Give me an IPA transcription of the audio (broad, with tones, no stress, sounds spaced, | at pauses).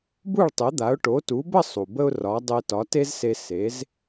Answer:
b u˥˩ ɭ tˤ e˩˥ d̪ a˩˥ ʊ̯ ʈ o˩˥ t u˩˥ b ə˥˩ sˤ u˩ b ə˥ ʊ̯ r ɒ˩˥ dˤ e˧ t ɒ˩˥ t e˥ z s e˧ s e˩˥ z